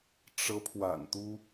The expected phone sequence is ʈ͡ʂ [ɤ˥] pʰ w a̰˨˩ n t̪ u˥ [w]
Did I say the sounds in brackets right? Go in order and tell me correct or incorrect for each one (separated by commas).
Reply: incorrect, incorrect